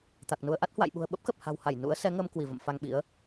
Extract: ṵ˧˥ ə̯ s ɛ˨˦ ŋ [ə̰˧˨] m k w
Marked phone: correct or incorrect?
incorrect: ə˧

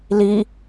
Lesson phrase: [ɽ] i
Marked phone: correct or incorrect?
incorrect: l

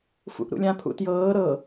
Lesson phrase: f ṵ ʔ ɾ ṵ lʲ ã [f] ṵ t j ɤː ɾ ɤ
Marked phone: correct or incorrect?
incorrect: pʰ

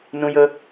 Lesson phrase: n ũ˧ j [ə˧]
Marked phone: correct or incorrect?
correct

